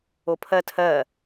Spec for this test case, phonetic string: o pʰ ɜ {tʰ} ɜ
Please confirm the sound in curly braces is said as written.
yes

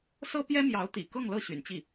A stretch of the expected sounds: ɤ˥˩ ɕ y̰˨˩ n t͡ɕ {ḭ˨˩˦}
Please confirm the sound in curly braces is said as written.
no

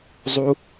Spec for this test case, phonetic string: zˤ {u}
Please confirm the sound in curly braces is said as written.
yes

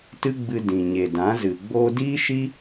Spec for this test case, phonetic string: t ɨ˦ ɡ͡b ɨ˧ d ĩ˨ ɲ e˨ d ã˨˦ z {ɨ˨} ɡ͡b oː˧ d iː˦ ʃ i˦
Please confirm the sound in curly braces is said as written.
yes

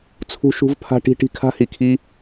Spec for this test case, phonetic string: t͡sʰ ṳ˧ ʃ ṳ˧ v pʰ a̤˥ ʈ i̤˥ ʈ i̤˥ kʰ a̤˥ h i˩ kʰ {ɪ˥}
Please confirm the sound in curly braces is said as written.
no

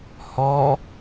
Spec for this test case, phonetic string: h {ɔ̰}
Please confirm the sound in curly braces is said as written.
no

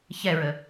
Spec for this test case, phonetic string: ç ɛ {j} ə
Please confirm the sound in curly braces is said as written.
no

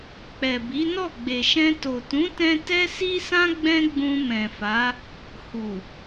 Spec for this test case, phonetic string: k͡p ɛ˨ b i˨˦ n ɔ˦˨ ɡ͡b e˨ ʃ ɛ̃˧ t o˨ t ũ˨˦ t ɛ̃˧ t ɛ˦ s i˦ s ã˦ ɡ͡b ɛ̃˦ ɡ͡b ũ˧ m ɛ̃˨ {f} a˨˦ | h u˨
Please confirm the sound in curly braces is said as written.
yes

